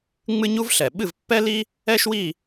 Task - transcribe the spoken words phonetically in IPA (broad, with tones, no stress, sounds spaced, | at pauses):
ŋ͡m ɨ˥ ɲ u˥ v ɬ ɛ˨˩ ɓ ɨ˥˧ v pː ɛ˥ l i˥ | ɛ˥ ʃ w i˥˧